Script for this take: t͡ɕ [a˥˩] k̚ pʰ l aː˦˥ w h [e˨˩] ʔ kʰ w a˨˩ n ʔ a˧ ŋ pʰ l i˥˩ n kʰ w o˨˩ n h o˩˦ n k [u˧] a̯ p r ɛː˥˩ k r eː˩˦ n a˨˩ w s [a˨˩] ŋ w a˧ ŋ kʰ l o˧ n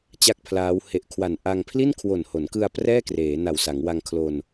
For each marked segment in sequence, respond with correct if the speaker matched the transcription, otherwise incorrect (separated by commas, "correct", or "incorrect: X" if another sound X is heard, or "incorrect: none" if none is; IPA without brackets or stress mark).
correct, correct, incorrect: ɯ˧, incorrect: a˩˦